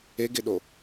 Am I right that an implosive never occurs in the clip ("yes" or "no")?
no